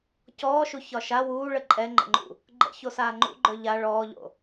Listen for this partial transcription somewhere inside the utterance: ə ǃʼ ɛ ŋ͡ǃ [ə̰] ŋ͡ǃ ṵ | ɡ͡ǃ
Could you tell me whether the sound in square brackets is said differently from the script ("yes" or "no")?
no